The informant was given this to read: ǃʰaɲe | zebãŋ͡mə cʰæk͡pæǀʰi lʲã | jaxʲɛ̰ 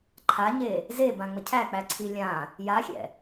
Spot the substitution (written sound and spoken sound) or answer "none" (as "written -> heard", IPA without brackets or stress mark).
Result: none